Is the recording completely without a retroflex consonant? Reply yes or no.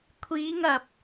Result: yes